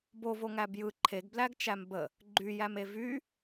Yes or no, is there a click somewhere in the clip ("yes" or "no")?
yes